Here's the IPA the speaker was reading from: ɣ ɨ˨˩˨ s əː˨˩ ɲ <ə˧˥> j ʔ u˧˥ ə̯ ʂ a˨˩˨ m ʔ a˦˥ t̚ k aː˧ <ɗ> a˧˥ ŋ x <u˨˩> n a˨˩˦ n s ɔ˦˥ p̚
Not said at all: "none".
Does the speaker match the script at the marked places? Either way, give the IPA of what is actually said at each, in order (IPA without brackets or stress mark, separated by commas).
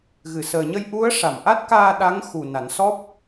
ə˧, ɗ, u˨˩